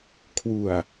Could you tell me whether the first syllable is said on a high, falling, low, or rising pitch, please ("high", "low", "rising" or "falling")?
low